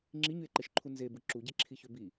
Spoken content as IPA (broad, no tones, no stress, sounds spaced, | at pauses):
ŋ͡ǁ i ɲ y e̯ ǃ e ʃ ǃʰ u n z e b ɯ ǁ u ɟ e ǁʰ i ç ø b i